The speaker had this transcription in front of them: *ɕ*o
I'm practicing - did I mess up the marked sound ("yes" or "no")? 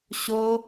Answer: no